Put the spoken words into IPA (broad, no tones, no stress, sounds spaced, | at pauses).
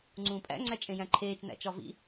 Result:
ŋ͡ǀ ũː pʼ æ̰ ŋ͡ǀ æ t͡ʃʼ ẽ j æ̃ ǃʰ eː t͡ʃ n æ̰ t͡ʃ ɒ v ḭ